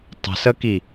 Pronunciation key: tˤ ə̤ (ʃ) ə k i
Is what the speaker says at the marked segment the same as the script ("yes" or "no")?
no